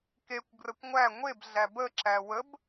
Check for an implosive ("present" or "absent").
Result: absent